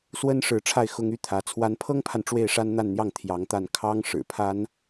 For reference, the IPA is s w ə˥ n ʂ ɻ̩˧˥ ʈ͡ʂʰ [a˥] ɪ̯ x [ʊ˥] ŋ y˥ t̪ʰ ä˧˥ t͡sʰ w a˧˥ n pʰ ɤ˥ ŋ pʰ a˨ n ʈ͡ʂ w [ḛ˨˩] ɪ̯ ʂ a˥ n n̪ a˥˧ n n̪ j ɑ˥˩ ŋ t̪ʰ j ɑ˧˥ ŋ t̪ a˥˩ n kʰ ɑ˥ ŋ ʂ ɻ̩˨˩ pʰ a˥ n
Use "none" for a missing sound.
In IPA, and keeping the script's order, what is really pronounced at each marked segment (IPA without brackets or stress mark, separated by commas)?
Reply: a˥˩, ʊ˥, e˥˩